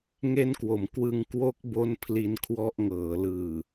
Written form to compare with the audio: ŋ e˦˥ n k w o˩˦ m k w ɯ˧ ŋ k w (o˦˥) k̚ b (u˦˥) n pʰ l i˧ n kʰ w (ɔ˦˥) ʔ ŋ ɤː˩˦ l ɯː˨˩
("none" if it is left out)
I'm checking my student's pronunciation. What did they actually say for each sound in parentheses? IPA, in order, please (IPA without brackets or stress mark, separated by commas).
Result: o˦˥, o˦˥, ɔ˦˥